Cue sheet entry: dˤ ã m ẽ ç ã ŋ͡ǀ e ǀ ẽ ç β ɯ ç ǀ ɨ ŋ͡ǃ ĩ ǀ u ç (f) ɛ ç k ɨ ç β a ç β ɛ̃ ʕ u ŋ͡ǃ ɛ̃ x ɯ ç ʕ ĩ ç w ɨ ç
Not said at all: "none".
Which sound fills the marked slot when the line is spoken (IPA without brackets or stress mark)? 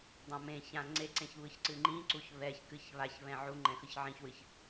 β